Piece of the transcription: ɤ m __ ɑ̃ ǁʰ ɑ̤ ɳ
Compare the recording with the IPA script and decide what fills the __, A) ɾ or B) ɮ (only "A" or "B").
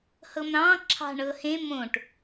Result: A